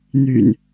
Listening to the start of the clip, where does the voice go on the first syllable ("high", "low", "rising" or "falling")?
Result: low